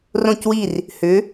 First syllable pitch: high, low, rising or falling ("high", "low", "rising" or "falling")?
falling